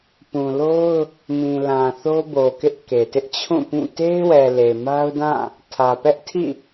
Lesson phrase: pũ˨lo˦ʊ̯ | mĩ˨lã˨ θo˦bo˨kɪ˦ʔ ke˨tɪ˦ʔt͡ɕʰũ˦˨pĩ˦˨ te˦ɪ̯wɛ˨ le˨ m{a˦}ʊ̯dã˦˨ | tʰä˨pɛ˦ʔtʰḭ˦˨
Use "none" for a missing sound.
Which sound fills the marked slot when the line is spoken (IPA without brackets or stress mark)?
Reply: a˦